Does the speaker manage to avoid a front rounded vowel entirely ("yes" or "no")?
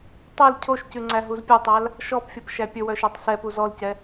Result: no